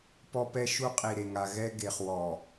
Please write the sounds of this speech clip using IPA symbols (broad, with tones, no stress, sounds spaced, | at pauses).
p ɔ˦ p ɛ˦ ʃ u˦ qʼ i˨ ɾ e˨ ŋ a˨ ɣ ɛ˦ ɡ e˨ χ w ɔ˨